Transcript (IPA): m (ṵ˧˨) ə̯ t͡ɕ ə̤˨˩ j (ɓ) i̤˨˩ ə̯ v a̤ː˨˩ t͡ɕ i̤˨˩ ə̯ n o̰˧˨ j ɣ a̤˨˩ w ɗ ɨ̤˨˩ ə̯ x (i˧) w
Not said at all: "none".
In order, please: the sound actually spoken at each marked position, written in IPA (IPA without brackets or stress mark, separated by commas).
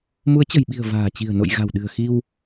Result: u˨˦, ɓ, i˧